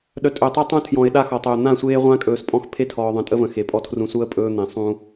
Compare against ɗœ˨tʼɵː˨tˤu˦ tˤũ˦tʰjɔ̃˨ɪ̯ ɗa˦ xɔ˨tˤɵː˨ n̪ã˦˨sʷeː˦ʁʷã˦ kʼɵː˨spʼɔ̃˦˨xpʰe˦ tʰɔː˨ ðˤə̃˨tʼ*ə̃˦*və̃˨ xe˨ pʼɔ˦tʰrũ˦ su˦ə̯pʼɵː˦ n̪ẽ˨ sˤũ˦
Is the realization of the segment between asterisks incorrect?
yes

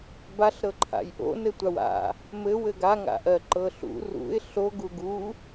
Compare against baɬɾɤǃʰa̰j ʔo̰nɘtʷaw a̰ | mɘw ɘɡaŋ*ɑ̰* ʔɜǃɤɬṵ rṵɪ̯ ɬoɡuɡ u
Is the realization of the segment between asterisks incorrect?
yes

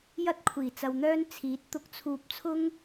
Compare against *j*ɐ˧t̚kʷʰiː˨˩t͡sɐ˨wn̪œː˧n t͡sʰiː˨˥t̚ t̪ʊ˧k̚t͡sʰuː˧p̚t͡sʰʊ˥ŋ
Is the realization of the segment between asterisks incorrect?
no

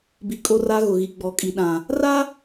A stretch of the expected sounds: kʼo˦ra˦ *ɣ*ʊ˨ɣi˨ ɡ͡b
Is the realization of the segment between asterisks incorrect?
no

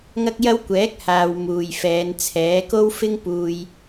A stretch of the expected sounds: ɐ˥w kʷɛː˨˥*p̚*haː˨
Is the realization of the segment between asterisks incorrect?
yes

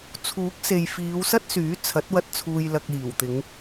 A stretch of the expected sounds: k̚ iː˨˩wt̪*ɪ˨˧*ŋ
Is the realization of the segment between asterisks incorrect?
no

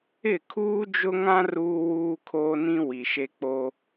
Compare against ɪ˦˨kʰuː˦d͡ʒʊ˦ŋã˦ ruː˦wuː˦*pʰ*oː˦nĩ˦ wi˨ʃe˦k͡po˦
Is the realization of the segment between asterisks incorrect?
yes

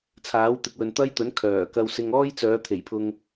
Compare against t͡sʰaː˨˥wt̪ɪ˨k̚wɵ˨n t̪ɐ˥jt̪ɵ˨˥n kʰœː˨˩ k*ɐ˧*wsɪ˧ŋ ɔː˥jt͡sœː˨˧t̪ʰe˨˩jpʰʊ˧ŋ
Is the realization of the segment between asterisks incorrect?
no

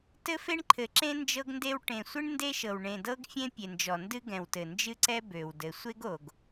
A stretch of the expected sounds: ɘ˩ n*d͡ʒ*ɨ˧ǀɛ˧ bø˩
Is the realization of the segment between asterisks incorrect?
no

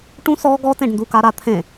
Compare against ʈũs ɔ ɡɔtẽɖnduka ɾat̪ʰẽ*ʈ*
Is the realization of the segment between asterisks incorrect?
yes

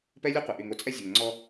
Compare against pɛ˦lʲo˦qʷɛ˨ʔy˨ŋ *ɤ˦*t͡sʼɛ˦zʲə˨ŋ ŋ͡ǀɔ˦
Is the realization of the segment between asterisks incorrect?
yes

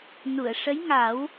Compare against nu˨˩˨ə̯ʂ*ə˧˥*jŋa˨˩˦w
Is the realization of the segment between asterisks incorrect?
no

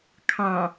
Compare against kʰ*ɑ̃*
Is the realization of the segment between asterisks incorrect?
no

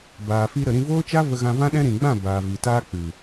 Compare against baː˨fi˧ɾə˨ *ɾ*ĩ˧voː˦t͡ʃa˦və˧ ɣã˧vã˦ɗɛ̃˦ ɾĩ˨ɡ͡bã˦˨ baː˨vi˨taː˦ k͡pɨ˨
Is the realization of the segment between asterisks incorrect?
no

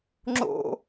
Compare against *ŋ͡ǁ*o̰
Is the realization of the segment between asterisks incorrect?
no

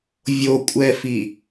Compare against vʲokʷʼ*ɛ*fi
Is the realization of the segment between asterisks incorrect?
no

